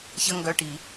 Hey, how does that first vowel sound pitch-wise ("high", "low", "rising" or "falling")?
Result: high